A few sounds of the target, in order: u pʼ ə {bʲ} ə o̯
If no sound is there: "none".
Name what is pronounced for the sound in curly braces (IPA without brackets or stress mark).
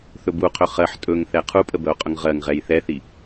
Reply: b